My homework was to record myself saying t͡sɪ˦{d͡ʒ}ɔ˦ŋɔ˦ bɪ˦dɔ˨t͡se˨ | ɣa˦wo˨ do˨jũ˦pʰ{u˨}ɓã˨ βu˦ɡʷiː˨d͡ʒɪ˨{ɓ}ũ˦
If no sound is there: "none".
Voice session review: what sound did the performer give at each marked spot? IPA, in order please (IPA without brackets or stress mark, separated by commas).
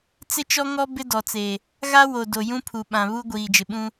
t͡ʃ, u˨, ɓ